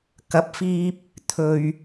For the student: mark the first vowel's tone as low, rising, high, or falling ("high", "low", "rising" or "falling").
rising